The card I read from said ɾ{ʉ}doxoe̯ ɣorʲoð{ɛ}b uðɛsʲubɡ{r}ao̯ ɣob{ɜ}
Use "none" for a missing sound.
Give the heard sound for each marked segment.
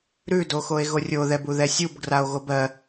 ʉ, ɛ, r, ɜ

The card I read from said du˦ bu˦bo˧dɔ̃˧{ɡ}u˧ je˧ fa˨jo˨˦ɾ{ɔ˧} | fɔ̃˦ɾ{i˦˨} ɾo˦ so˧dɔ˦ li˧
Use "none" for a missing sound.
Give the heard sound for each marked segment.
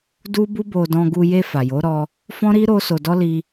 ɡ, ɔ˧, i˦

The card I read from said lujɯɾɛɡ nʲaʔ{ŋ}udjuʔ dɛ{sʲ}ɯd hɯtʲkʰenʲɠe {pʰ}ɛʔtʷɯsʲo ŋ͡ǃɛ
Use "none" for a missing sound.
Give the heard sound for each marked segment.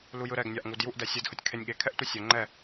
ŋ, sʲ, kʰ

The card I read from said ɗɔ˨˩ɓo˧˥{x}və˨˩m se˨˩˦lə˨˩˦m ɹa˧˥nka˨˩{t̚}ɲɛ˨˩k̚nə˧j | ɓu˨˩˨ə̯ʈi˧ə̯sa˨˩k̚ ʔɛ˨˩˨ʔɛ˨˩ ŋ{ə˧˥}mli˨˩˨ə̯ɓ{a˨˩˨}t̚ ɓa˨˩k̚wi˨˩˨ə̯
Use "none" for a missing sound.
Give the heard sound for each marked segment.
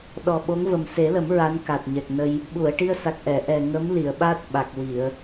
ŋ, t̚, ə˧˥, a˦˥

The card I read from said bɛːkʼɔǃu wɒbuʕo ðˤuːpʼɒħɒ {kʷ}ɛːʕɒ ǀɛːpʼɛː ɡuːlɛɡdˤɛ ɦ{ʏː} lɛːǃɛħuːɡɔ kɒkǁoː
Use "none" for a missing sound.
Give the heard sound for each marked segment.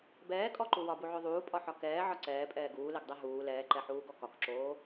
k, uː

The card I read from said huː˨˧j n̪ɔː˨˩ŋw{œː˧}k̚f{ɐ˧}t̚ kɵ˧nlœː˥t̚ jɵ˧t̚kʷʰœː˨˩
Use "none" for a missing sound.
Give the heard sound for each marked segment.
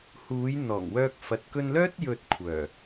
œː˧, ɐ˨

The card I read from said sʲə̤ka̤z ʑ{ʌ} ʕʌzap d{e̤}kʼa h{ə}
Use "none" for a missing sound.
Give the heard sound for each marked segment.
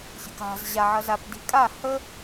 a, i̤, ə

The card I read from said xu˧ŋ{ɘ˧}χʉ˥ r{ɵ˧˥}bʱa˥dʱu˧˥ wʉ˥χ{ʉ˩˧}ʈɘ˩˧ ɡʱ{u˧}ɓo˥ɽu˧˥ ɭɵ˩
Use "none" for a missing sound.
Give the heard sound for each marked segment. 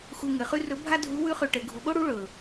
ɘ˩˧, ɵ˧˥, ʉ˧, u˩˧

